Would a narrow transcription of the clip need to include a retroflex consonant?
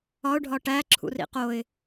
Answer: yes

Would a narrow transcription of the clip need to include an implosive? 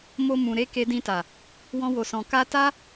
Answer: no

